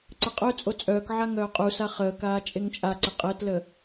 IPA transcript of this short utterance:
ǀəqʼœt͡sʼo t͡sʼœːkʕa ŋœːqʼusa χəːkaː t͡ʃʼeŋt͡ʃʼaǀə qʼəːtləː

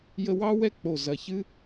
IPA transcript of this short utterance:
jə˧wɑ˦ wɛ˦k͡po˨ zɐ˨çɨ˦

